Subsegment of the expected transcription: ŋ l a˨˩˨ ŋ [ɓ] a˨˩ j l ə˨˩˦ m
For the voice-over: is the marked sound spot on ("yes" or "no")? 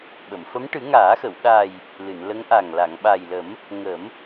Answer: yes